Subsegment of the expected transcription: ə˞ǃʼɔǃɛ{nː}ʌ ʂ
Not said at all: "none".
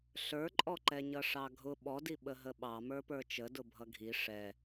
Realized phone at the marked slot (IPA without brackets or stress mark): ɲ